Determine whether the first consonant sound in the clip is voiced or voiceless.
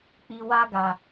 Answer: voiceless